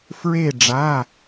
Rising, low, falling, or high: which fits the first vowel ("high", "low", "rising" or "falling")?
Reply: falling